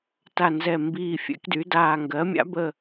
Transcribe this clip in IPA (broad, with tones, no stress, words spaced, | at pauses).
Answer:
ta˨˩nzɛ˨˩ mbiː˨˩fʲɛ̰˩˧kdy˩˧daː˨˩ ŋɡɜ˩˧mʲa̰˩˧bə˨˩